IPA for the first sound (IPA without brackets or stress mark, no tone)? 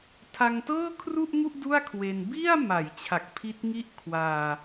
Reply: tʰ